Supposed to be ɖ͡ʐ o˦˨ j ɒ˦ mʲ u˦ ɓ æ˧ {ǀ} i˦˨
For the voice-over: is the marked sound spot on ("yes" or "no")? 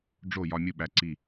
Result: yes